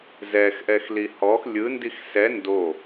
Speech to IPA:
z ɛ x ʔ ɛ x l i h ɔ x lʲ ɯ n d i x s ɛ n d o

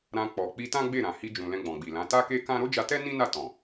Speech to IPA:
ɾ ã˧ k͡p ɔ˨ k͡p i˧ t ã˦ ɡ͡b e˦˨ ɾ ã˨ h i˧ d͡ʒ ũ˨ l ɛ̃˧ ɡ͡b ɔ̃˨ ɡ͡b i˨ l ã˨˦ t a˦ k e˦ k ã˦ ɾ o˦ d͡ʒ a˧ t ɛ˦ n ĩ˦ n a˦˨ t ɔ̃˨

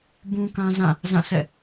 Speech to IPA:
b ũ˦ k ã˦ z ã˦˨ | z ã˦˨ s ɛ̰˦˨

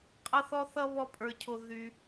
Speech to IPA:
qʼ ʌ˥ θ ɔ˥ θ ʌ˥ β ɔ˥ pʼ ə˞˧ cʰ o˧ ð y˧

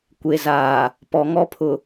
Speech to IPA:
kʷ e˨ z aː˨ | p ɔ˨ ŋ ɔ˦ pʰ ʊ˨

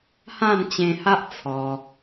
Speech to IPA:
h ã˥˧ n t͡ɕ ẽ˧ h a˦ ʔ t͡sʰ ɔ˧

